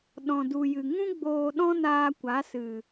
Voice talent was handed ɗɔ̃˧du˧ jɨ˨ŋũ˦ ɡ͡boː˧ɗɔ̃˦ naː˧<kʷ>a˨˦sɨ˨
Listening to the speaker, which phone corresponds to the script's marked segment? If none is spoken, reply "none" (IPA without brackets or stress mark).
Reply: kʷ